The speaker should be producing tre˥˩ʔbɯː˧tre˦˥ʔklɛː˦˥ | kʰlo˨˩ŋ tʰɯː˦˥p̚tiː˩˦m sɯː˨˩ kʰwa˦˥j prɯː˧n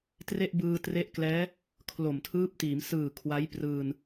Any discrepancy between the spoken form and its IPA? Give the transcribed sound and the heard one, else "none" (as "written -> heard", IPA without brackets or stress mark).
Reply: ŋ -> m